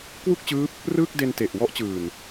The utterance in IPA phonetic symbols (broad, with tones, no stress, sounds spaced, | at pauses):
k w u˥˩ k̚ t͡ɕ ɯː˦˥ p̚ | r ɯː˥˩ k̚ d e˧ n t e˨˩ ʔ w ɔ˦˥ ʔ t͡ɕ ɯː˨˩ n